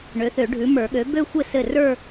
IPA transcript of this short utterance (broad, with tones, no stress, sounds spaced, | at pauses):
ɳ ø˩˥ θ ø˨˩˦ ɖʱ ʉ˩˥ m ə˞˨˩˦ ɠ ø˩˥ b ø˥˧ xʷ ɘ˥˩ s ɘ˥˩ r ə˞˥˧